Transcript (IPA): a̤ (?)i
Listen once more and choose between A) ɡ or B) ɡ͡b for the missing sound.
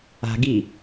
A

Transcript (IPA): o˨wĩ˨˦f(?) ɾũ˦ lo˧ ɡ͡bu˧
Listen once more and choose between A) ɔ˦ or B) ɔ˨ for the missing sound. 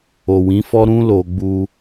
A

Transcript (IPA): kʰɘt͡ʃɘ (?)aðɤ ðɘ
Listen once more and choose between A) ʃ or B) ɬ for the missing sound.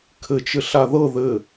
B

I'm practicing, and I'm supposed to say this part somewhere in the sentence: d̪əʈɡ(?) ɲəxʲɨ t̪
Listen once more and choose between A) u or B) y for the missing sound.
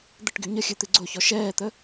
B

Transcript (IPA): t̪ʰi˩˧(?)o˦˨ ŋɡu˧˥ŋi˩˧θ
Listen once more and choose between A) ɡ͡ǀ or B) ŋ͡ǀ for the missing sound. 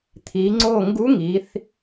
B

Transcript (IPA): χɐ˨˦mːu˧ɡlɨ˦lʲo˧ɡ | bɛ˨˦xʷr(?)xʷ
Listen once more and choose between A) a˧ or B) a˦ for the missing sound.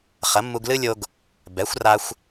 A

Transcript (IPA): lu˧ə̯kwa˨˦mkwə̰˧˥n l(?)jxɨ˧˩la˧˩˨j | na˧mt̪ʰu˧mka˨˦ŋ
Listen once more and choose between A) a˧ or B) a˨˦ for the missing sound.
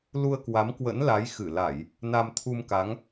B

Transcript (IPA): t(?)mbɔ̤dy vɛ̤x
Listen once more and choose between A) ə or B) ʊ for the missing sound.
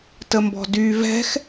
A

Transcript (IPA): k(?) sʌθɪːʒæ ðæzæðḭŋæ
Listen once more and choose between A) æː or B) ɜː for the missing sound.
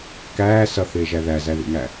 A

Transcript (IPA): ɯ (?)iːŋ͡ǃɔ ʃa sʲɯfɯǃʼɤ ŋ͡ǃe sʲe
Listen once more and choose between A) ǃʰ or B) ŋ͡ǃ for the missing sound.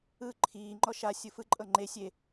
A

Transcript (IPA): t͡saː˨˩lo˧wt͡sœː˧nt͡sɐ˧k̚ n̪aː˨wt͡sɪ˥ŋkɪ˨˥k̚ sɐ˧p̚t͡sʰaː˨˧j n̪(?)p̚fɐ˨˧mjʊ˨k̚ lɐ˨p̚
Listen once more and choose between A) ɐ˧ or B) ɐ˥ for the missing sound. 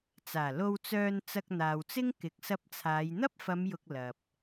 B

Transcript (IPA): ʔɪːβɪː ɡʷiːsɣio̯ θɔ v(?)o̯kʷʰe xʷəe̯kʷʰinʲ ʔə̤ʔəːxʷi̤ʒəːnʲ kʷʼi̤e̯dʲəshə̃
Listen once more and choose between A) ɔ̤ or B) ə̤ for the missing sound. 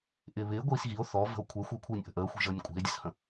B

